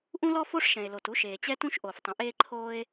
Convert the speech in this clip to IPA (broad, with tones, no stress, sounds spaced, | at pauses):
ʔ ũ˥ l ɔ˥ f o˥ ʂ ʃ ɛ̃˩ e̯ l o˩ t u˥ ʃ eː˩ t͡ɕ ɛ˥ t ũ˥ ʃ ʔ o˩ f tˤ ə̃˩ ʔ eː˥ ǃʰ oː˥ e̯